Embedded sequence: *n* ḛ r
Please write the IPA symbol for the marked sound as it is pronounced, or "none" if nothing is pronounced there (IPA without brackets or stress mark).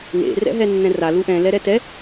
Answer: n